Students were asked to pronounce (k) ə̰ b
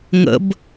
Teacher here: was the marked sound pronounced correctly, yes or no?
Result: no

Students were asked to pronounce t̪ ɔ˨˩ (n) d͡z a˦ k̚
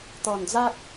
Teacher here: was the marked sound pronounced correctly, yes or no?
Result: yes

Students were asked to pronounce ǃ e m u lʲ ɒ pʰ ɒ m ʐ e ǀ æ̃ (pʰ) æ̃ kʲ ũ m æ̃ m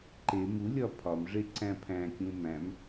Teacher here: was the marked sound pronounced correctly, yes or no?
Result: yes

